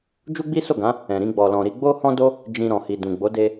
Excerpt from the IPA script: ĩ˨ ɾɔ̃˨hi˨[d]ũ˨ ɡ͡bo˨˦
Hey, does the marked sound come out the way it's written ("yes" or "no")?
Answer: yes